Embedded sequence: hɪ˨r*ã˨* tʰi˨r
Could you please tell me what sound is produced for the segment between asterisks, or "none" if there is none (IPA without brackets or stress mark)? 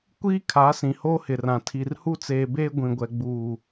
ã˨